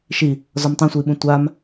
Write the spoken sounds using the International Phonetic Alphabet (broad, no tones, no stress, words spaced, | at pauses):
ʃi | zɔmtˤãsʷɯi̯ɓũ tʷam